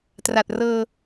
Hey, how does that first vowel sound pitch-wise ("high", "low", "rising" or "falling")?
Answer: low